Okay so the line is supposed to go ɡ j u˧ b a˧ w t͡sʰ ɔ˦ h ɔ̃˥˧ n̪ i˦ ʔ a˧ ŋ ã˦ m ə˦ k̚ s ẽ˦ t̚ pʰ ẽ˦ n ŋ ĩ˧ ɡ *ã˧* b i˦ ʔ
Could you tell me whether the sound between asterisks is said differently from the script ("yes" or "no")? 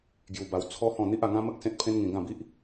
yes